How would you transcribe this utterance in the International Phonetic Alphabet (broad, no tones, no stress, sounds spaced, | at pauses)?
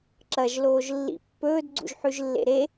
ǁ ɐ ʒ l oː ʒ lː ḭ pː ɵː d ɡ͡ǀ ṵ ʒ ħ ʉ ʒ lː ḛ ɾ e